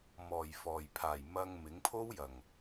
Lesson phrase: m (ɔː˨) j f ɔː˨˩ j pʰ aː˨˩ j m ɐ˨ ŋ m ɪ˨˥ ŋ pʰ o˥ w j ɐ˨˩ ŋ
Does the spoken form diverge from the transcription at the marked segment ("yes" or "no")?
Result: yes